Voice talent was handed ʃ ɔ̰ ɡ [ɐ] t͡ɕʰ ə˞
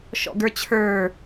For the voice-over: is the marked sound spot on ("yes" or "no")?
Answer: no